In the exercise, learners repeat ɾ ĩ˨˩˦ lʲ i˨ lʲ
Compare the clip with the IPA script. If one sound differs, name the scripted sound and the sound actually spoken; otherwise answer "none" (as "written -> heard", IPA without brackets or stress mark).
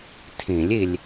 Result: ɾ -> tʰ